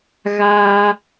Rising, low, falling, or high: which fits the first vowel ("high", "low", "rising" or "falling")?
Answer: high